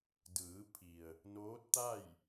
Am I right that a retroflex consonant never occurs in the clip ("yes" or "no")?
yes